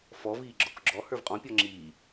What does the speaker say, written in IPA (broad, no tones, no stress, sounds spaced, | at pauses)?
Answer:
f ɔ v iː ɡ͡ǁ ɔ k ɡ͡ǁ ɔ h ə˞ v qʼ ɔ̃ pʲ ɔ ŋ͡ǁ iː